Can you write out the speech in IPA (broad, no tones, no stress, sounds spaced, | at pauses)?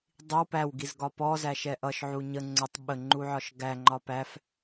dˤ i w p æ w ɡ i z ɡ ɒ p ɔ z æ ʃ ɛ ʔ ʌ ʃ ʕ u ɲ ə ŋ͡ǀ ə tˤ ɓ ə ŋ͡ǃ u ʕ ɒ ʃ ɡ æ ŋ͡ǃ ɒ p æ f